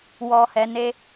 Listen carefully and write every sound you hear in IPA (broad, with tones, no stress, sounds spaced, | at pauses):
w ɔ˧ h ɛ˧ n e˦